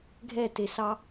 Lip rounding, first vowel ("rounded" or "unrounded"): unrounded